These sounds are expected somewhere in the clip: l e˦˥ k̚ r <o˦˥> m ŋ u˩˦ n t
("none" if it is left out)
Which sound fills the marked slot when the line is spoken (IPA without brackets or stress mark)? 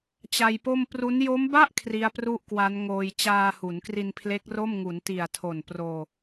o˥˩